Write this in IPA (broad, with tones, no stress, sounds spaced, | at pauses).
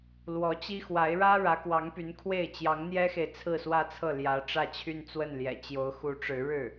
l w ɔ˧˥ t͡ɕ i˥ x w a˧˥ ɪ̯ ɻ ä˥ ɻ ä˧˥ k w ɑ˧˥ ŋ p y˧˥ n kʰ w e˥˩ ɪ̯ t͡ɕ j ɑ˧˥ ŋ n̪ j ɛ˥ x e˨ ɪ̯ t͡sʰ ɹ̩˥˧ s w ä˥˧ t͡sʰ ɤ˥˩ l j ä˧˥ ʈ͡ʂ ä˥˧ t͡ɕʰ y˥˧ n t͡s w ə˥˩ n l j ɛ̰˨˩ t͡ɕ j o˧˥ ʊ̯ x u˧˥ ʈ͡ʂ ɻ̩˧˥ ɻ ɻ̩˥˩